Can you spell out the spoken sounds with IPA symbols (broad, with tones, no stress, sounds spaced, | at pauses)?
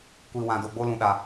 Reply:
kʷ i˨ w ã˨ d o˨ ɡ͡b o˦ l ũ˨ ɗ a˨